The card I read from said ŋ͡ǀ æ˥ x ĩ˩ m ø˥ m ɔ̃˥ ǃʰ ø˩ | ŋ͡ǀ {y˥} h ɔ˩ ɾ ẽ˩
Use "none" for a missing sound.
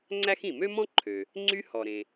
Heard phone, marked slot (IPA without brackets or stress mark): y˥